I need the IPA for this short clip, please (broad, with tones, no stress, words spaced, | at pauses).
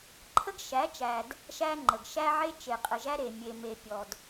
ǃʰə˦ɡʃæ˨˦t͡ʃæ˨d | ʃæ˦ŋ͡ǃə˨ɡ ʃæ˦ʕe˦ t͡ʃe˨qʼə˨ʒæ˦ɾe˨ mʲe˨me˨pʲɔ˨d